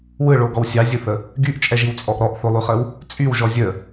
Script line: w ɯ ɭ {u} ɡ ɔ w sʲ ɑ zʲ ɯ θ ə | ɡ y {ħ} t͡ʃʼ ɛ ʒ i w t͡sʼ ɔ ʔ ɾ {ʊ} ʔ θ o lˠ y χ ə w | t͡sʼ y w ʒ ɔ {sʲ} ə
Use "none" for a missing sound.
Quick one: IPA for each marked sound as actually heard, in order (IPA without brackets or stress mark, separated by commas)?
o, ʔ, ɔ, zʲ